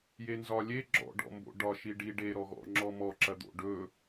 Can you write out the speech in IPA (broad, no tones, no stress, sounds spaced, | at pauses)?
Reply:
j e n z ɒ lʲ e ɡ͡ǁ ɔ̰ ɖ ɔ̰ m b o̰ ɖ ɒ ʃ i ɖ i ɖ e ɾ ɔ ɣ ɔ̰ ŋ͡ǁ ɔ m ɔ ǁ ɐ d̪ o̰ ɖ ɵ